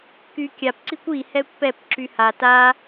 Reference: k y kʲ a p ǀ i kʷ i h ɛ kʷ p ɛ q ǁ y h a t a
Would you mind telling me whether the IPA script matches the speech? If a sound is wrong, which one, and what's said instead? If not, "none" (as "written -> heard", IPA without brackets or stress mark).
q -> p